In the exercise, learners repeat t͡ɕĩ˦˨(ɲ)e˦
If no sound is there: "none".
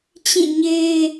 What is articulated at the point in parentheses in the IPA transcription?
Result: ɲ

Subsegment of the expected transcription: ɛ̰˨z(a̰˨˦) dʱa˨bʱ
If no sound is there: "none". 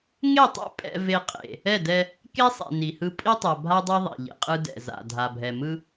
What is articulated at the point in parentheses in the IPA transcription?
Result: a̰˨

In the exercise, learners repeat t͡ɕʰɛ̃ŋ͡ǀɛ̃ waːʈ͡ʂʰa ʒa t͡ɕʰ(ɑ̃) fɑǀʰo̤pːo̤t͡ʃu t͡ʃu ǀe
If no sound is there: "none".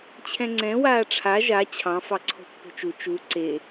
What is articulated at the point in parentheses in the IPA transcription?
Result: ɑ̃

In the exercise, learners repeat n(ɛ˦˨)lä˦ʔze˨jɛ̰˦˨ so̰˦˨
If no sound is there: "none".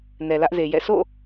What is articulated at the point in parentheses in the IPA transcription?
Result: ɛ˨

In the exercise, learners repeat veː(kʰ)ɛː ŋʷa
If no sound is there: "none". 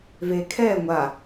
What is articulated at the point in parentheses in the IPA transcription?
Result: kʰ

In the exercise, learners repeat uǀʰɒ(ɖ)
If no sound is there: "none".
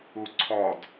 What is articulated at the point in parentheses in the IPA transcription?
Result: d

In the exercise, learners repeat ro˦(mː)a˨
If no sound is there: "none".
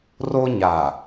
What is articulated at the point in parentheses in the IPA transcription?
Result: ɲ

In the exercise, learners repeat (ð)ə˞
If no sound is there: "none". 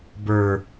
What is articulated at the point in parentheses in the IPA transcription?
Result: b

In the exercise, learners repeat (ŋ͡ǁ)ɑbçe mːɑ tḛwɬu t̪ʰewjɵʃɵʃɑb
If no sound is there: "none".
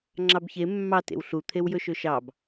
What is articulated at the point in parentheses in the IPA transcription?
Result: ŋ͡ǁ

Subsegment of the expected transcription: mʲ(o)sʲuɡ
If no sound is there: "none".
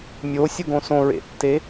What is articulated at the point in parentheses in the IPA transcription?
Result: o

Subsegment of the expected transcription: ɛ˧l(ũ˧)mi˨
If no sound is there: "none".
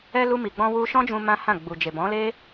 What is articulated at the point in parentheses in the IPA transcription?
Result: u˧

